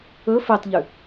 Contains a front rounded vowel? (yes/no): yes